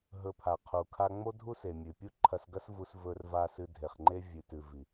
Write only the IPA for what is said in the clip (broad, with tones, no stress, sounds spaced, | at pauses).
ɦ ɵ˧ pʰ a˨ qʰ u˨ kʰ a˧ ŋ͡m o˦ dʱ u˦ s e˨ mʲ ʉ˨ pʲ u˦ ǃʰ ɐ˧ s ɡ ɐ˦ s v u˧ s v ɵ˧ r v a˧ s ɨ˧ dʱ e˨ χ ŋ͡ǃ e˦ vʲ ʉ˨ t ʉ˨ v i˨